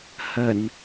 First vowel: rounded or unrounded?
unrounded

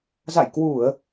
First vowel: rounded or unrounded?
unrounded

